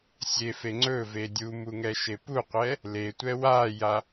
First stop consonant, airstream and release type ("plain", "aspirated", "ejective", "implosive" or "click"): click